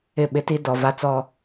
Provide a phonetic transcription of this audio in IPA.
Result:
ɪ˦˨ ɓ ɪ˦ t i˦ d ɔ˨ v a˦ t͡s ɔ˦

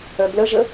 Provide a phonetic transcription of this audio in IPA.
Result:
œ b l ə ʒ ə

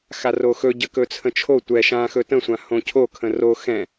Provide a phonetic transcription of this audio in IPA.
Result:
x a r o x ɵ ɟ ə k ɵ t͡sʰ ə̃ t͡ʃʰ o tʷ ɛ ʃ ã x ɵ t ə̃ sʷ ã h õ cʰ o kʰ ə̃ r o x ɛ̃

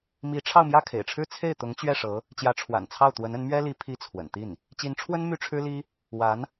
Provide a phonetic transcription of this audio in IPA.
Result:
m i˧˥ ʈ͡ʂʰ ɑ˥˧ ʊ̯ m j ä˥˩ kʰ ḛ˨˩ ɪ̯ ʈ͡ʂʰ ɻ̩˥ t͡sʰ e˥˩ ɪ̯ t̪ ʊ˧˥ ŋ t͡ɕ ɥ ɛ˥˩ ʂ ɤ˧˥ | t͡ɕ j ä˧˥ ʈ͡ʂʰ w a̰˨˩ n t͡sʰ ɑ˥˩ ʊ̯ t̪ w ə˧˥ n ə˧˥ n m ɥ ɛ˥ l i˧˥ pʰ i˥˩ t͡sʰ w ə̰˨˩ n t̪ i˥˩ n | t͡ɕ i˧˥ n ʈ͡ʂʰ w ə˥ n m y˥˩ ʈ͡ʂʰ ɻ̩˥ l i˥ | w a˧˥ n

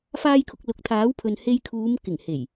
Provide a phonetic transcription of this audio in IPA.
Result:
f aː˥ j kʰ ʊ˧ k̚ l ʊ˨˥ k̚ t̪ʰ aː˨˥ w pʰ ɵ˨ n h e˧ j kʰ uː˨˧ m k ɪ˨˩ ŋ h e˨˩ j

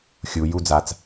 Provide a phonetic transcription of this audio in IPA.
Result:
xʲ u j u d͡z a t͡s

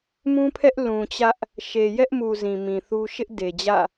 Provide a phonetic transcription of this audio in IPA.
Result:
m ũ˦ pʰ ɛ˦ ʔ l ũ˨ t͡ɕ ä˦ ʔ | ʃ e˨ j ɛ˦ ʔ m u˨ z ĩ˨ m ĩ˨ θ u˦ ʃ ɪ˦ ʔ d e˨ d͡ʑ ä̰˦˨

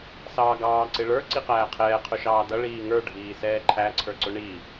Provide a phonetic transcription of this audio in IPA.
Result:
s ɑː ɡ ɑː ǀ ɪ ɭ ə˞ ǀ i q æː qʰ ɛː qʰ ʊ ʃ ɑː d ʌ ɭ iː ŋ ə˞ ɖʱ iː s ɛː ǃʰ æ ǀʰ ə˞ ǀ ʊ ɳ i

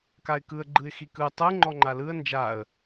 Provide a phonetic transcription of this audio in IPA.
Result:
k a ɪ̯ k ɯ ə̯ ɡ͡ǃ ɯ ɪ̯ x i k ɯ tˤ ɯ ŋ͡ǃ ɔ ŋ͡ǃ a l ɯ ə̯ n d͡ʒ a ə̯

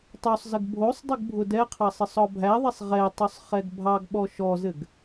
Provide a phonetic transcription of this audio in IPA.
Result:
tˤ o sˤ z ə ɡ bʱ o sˤ dˤ ɘ ɡ bʱ ʊ d ɛ qʰ ɑ sˤ ɘ sˤ ɔ bʱ æ ðˤ ɛ sˤ ʁ ɛ tˤ ʊ sˤ χ ɛ ɡ bʱ ɑ ɡ ɓ ɔ ʃ ɔ z ɘ ɡ

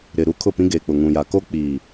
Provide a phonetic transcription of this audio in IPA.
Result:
ɾ ɪ˨ ɾ u˦ kʰ ʊ˦˨ p ĩ˦ ɡ eː˨ k͡p ʊ˨ ŋ ũ˨ j a˨ k o˦ k͡p iː˨

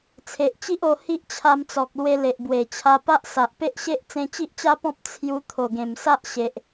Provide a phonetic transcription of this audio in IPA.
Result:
t͡sʰ e˨ ʔ t͡ɕ i˦ ʔ o˧ h i˦ ʔ t͡ɕʰ a˧ m t͡s ɔ˨ k̚ l w e˧ l e˨ ʔ b w e˨˩ t͡ɕʰ a˧ p a˦ ʔ s a˨ ʔ p e˦ ʔ ɕ e˦ ʔ t͡s ẽ˧ t͡ɕ i˦ ʔ t͡ɕ a˦ p ɔ̃˦ p̚ t͡sʰ j u˧ t̪ʰ o˨˩ ɡ ẽ˨˩ m s a˦ ʔ ɕ e˨ ʔ

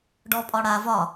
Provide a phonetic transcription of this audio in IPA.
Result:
ɖ ɔ pʼ ɒ ɽ a v ɒ

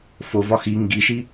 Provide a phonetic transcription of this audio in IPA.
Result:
f o v ɒ x i ŋ ɡ i ʃ i

